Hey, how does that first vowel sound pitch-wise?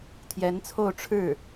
rising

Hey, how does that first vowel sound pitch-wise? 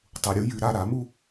low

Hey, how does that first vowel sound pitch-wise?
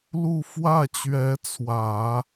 falling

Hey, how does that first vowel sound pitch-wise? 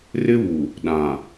high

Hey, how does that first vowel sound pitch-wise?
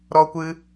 high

